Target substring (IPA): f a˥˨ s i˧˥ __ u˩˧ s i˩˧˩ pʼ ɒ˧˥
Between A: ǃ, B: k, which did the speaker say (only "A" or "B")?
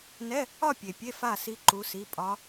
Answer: A